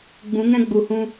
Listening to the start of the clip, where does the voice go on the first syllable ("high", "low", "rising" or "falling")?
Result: rising